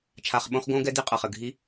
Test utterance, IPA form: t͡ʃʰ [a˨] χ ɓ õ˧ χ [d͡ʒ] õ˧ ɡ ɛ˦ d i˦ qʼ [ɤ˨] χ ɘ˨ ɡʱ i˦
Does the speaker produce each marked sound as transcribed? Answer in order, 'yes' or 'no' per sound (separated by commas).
yes, no, yes